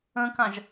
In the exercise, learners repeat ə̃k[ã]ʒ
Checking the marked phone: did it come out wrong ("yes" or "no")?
no